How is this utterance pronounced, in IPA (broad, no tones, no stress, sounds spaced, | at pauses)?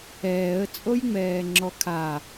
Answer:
ɛː ə̯ t͡sʼ o j ŋ͡m ɛː ŋ͡ǁ ɔ kʰ a